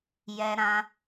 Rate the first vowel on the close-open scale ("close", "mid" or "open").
mid